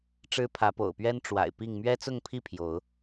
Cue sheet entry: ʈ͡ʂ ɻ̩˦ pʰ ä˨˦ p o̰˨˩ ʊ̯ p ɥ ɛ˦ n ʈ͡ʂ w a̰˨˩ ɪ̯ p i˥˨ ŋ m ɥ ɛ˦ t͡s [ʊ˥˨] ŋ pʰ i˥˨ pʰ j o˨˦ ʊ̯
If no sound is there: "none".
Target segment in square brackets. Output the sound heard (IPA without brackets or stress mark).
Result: ʊ˥˨